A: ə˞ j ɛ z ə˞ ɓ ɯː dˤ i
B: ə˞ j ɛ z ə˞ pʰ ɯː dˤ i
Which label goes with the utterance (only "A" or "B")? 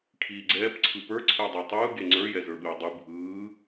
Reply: A